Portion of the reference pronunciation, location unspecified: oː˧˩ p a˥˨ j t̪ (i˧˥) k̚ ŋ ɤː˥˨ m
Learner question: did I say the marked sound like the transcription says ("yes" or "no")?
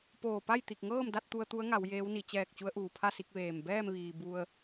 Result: no